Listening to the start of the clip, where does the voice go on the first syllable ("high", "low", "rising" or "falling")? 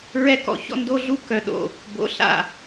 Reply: high